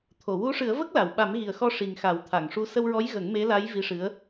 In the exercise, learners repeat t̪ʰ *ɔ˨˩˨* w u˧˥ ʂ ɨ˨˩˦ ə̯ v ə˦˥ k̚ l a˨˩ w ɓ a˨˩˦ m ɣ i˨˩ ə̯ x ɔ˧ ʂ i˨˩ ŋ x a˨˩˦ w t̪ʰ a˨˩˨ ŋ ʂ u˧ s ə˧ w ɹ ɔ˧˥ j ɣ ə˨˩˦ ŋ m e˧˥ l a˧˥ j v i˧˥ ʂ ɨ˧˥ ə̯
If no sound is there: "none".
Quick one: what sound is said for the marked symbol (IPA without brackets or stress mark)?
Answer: o˨˩˨